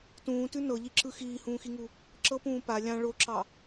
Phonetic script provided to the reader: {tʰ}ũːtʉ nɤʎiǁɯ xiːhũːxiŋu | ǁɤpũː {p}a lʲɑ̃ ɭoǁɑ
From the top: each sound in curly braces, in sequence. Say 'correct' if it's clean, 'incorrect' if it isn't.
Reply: incorrect: t, correct

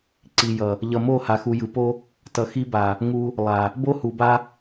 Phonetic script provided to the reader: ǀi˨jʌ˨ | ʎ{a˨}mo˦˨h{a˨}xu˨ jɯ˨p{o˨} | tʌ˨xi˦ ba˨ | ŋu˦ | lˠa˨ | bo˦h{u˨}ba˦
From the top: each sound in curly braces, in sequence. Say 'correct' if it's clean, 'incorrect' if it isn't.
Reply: incorrect: ʌ˨, correct, incorrect: o˦, correct

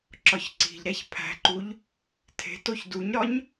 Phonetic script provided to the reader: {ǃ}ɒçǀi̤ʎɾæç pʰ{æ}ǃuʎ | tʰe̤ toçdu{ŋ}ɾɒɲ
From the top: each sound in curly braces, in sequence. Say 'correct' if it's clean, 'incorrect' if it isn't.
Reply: incorrect: ǁ, incorrect: æ̤, incorrect: ɲ

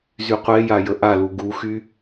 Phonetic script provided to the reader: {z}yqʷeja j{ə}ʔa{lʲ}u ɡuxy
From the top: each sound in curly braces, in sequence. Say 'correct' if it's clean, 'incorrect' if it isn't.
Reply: correct, correct, incorrect: l

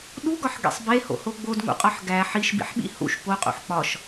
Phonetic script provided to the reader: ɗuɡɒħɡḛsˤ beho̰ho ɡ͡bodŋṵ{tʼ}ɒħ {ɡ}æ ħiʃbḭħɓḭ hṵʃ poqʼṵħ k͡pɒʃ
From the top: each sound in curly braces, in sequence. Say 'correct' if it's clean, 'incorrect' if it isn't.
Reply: incorrect: qʼ, correct

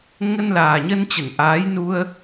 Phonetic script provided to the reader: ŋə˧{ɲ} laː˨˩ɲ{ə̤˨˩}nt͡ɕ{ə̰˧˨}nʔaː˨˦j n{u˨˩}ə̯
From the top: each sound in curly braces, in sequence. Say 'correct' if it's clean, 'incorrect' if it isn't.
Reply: incorrect: n, incorrect: ə˧, incorrect: ə˧˩, incorrect: u˧

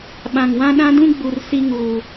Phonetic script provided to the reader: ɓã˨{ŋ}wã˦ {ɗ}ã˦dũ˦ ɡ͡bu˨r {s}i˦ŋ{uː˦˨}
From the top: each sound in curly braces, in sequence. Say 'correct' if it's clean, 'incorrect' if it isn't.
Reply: correct, correct, correct, incorrect: uː˨

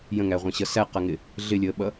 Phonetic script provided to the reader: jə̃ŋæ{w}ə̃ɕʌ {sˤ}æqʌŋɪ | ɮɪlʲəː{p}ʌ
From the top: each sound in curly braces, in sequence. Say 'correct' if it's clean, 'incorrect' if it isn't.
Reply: incorrect: ʁʷ, incorrect: s, incorrect: ɓ

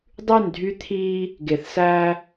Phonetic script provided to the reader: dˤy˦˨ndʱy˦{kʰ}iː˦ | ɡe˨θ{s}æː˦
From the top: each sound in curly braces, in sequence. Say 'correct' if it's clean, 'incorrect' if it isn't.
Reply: incorrect: t̪ʰ, correct

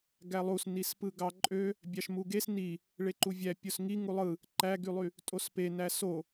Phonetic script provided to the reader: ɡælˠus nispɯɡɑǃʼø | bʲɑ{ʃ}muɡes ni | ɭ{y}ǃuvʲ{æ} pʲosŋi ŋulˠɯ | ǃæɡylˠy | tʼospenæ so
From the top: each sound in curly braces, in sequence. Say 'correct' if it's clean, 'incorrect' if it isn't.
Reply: correct, incorrect: e, correct

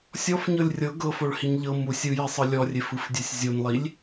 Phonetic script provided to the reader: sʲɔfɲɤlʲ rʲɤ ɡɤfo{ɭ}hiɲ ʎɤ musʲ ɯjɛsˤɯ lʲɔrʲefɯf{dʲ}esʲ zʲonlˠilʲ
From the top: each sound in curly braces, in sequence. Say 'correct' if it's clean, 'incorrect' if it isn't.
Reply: correct, correct

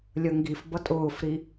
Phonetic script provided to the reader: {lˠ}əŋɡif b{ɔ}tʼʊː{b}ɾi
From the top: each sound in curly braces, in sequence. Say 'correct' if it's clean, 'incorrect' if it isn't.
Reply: incorrect: lʲ, incorrect: ʌ, incorrect: f

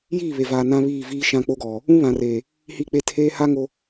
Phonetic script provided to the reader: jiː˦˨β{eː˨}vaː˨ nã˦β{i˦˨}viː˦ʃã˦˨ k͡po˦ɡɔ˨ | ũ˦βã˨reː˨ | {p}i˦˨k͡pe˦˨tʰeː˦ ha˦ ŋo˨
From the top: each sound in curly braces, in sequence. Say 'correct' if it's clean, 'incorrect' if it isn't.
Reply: incorrect: e˨, incorrect: iː˦˨, incorrect: h

